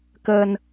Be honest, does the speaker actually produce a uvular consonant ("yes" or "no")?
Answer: no